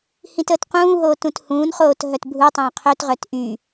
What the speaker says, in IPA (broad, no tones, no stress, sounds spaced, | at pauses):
h ĩ t əː t q ũː ɦ oː t ũ t h ũː n χ oː t ɦ œ t bʱ u tˤ œ̃ː qʰ ø t ʁ œ t ʔ y